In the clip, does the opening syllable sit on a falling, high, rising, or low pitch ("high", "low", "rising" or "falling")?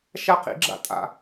falling